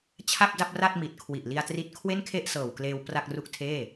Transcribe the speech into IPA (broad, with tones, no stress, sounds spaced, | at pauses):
t͡ɕʰ a˥˩ p̚ d a˥˩ p̚ r a˥˩ t̚ m i˨˩ t̚ kʰ w i˨˩ ʔ l i˧ a̯ t r i˦˥ t̚ kʰ w e˥˩ n kʰ e˥˩ ʔ s ɤː˨˩ w k l eː˧ w p r a˥˩ k̚ r u˥˩ k̚ tʰ eː˥˩